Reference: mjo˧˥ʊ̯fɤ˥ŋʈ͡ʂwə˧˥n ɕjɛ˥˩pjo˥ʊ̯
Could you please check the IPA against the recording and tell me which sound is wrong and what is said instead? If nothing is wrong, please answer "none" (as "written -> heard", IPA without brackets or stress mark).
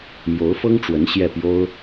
none